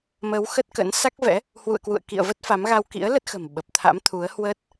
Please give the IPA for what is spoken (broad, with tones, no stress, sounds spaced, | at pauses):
m ə˨˦ w x ə˦˥ t̚ k ə̰˧˥ n s a˦˥ k̚ v ɛ̰˧˥ | h w ṵ˧˨ ə̯ k w ṵ˧˨ ə̯ k ḭ˧˨ ə̯ v ə˦˥ t̚ f a˨˦ m ɣ a˧ w k ḭ˧˥ ə̯ l ə˦˥ t̚ x ə̤˨˩ m ɓ ə˨˩ p̚ t̪ʰ a̰˧˥ m t̪ʰ u˨˦ ə̯ h w əː˦˥ t̚